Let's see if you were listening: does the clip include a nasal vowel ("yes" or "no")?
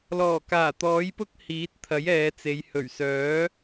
no